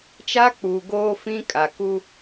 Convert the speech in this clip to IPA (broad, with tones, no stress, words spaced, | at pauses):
t͡ʃa˦ k͡puː˨ ɡoː˦fĩ˦ kʼa˨ ku˦